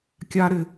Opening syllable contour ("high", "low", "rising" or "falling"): high